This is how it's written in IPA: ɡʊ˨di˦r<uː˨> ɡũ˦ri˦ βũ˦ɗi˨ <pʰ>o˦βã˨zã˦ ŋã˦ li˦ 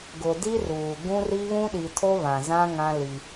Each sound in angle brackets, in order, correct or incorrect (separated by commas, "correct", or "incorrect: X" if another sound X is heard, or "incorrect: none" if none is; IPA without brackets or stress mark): correct, incorrect: tʰ